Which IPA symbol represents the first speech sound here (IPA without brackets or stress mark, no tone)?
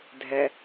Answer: dʱ